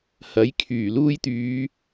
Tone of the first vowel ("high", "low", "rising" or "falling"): rising